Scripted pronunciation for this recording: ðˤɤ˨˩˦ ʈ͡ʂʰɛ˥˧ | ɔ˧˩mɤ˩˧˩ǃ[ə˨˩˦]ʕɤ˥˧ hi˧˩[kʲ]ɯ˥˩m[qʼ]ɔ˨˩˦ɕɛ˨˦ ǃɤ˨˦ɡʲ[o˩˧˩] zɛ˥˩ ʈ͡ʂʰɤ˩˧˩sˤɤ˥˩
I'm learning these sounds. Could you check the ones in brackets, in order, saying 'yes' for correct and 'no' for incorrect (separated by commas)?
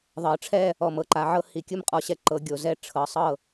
no, yes, yes, yes